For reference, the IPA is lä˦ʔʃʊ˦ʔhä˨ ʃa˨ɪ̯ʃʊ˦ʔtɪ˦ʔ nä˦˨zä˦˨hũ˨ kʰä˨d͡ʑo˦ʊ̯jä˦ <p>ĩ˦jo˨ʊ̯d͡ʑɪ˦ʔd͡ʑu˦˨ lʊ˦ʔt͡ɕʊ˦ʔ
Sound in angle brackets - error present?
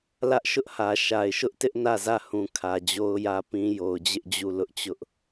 no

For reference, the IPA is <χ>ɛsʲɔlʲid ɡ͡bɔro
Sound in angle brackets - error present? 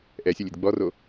yes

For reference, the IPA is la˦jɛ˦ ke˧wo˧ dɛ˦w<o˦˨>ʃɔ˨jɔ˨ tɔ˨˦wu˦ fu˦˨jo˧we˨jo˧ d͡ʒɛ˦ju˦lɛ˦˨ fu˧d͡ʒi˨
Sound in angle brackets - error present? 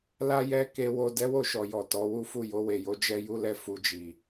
no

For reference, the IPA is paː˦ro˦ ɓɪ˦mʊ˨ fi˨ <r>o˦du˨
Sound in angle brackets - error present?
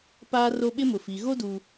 yes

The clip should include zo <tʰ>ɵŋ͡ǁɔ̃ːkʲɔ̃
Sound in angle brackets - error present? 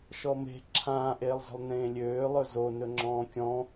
yes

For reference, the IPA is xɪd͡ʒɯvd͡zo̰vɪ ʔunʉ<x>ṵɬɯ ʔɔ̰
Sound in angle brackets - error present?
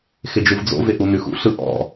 no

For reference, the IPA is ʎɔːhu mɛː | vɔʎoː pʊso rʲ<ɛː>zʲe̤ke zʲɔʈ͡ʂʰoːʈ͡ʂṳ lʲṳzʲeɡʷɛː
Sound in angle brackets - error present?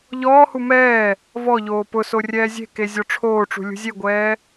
no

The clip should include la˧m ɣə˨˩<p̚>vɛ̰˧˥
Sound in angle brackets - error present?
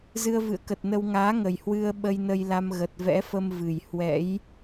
yes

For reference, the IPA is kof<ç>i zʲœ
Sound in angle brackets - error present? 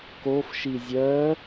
yes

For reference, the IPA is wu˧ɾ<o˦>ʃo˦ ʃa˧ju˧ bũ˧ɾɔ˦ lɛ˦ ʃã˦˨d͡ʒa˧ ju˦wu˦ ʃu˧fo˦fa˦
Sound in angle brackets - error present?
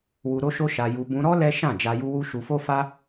no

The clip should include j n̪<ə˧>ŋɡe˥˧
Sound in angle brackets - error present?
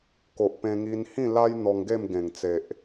yes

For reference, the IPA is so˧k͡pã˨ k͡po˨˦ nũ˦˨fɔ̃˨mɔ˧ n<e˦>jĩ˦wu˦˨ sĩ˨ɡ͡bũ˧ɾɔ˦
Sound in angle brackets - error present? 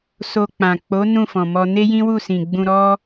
no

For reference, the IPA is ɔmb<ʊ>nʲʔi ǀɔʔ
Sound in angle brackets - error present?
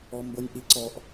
no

